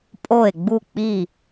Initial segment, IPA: pʼ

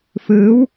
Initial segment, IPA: f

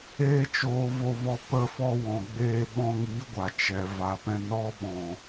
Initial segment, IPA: eː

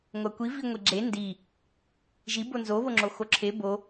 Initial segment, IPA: ŋʷ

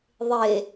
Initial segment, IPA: ðˤ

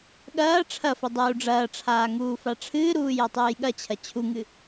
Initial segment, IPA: ɠ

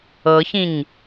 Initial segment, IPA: ɤ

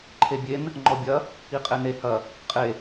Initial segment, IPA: ǃʰ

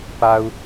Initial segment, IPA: p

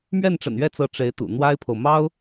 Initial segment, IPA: m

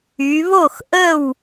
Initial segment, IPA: y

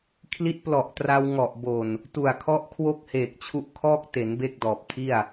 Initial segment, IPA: kʰ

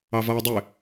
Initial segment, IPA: ɑ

